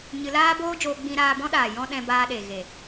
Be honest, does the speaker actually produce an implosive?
yes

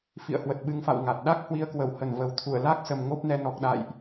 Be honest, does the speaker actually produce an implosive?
yes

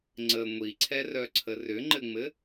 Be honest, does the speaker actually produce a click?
yes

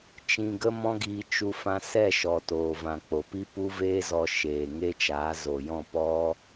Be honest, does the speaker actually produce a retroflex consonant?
no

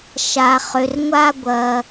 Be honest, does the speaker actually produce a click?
no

